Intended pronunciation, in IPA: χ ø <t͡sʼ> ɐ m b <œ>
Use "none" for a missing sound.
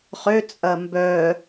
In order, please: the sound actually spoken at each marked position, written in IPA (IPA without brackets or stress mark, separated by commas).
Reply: t͡sʼ, œ